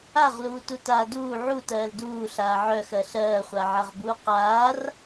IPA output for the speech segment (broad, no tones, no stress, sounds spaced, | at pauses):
a ʁ l uː t u t aː d uː ʕ u t ɜː l d uː ɬ aː ʕ œ x ɜ ɬ ɜː χʷ a ʕ a ʁ b uː q aː r